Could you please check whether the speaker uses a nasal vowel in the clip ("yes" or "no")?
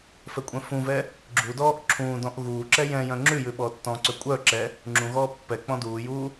yes